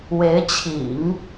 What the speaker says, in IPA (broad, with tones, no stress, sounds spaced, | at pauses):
w e˧˥ ɪ̯ t͡ɕʰ ḭ˨˩˦ ŋ